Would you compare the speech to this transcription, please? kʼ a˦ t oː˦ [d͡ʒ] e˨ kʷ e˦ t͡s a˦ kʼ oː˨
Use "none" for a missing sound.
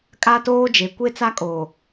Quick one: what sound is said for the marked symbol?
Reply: d͡ʒ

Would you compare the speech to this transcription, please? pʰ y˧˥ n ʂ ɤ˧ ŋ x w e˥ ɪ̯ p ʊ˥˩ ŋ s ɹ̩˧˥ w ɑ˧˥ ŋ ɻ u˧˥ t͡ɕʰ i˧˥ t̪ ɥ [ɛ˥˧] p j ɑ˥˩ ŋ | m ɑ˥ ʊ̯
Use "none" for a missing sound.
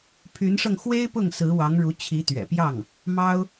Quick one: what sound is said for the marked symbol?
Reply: ɛ̰˨˩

